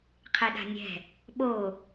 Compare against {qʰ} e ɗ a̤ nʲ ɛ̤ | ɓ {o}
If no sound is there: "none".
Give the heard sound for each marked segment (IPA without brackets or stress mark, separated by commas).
qʰ, o